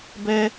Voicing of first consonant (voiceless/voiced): voiced